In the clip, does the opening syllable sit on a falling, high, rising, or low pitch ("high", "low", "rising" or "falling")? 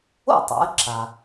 falling